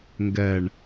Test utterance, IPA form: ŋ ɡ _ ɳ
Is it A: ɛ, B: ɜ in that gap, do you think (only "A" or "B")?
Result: A